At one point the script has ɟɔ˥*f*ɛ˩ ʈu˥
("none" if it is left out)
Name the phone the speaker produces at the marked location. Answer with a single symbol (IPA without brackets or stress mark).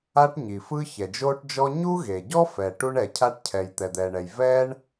f